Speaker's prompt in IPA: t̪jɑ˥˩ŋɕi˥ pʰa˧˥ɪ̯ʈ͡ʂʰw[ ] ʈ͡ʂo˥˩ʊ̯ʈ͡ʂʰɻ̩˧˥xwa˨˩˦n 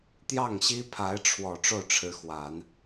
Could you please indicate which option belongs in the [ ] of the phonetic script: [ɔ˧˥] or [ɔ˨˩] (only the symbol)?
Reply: ɔ˨˩